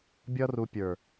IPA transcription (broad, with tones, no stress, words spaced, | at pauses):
bʲʌ˦ru˧ pʲə˞˨